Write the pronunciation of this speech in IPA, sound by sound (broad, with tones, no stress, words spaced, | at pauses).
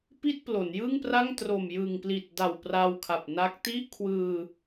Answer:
pi˥˩t̚plo˩˦njɯ˥˩ŋpra˥˩ŋ tro˨˩mjɯ˨˩ŋpli˨˩t̚da˨˩w pra˧wkʰa˨˩p̚na˦˥k̚ ti˥˩ʔ kʰwɯː˧